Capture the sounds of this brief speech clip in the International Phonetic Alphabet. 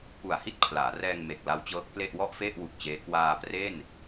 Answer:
p u˨˩ a̯ h i˥˩ t̚ pʰ l aː˩˦ r ɛː˧ ŋ m e˨˩ k̚ l a˦˥ w t͡ɕ ɤː˦˥ k̚ p l e˥˩ ʔ w ɔ˥˩ ʔ f e˥˩ ʔ w u˨˩ k̚ t͡ɕ eː˦˥ k w aː˧ p r e˥˩ n

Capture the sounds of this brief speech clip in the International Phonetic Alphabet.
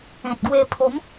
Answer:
ẽ˨ t̚ ɡ w e˧ pʰ o˨˦ m

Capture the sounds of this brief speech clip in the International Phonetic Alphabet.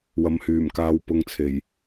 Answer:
w ɐ˨ m h yː˨˩ m k aː˨ w p ʊ˨ ŋ t͡sʰ e˨˩ j

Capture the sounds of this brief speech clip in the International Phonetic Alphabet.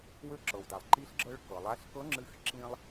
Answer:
w ø˧ ǁ ɤ˩ w d a˩ lˠ ǃ i˧˥ ɬ ɡ͡ǁ ɤ˧ ɭ k ɤ˩ lˠ a˧˥ ɬ k ɤ˧˥ ŋ͡ǁ ɨ˧˥ x ǁ ĩ˧ lˠ

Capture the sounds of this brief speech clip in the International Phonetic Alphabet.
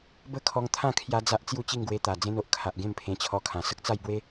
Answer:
b ə˥˧ kʰ ɔ˧ ŋ t̪ʰ ã˥˧ kʰ j a˦ d͡z a˦ ʔ t͡s j u˥˧ t͡ɕ i˥˧ ŋ ɡ w e˧ t̪ a˨˩ d͡z ẽ˦ n o˨ ʔ kʰ a˨ ʔ ɡ ẽ˥˧ m pʰ ẽ˧ t͡ɕʰ ɔ˧ kʰ ã˨˩ s ə˦ k̚ t͡s a˥˧ j b w e˦

